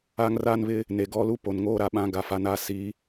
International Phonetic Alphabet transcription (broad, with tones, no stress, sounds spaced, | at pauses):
a˦ ŋ r a˦ n β ɪ˦ | n e˨ ɡ ɔ˦ l u˦ p o˨ n ŋ oː˦ ɾ a˨ ɓ ã˦ ɡ a˨ f a˨ n a˦˨ s i˨˦